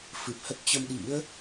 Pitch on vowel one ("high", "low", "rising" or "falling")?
low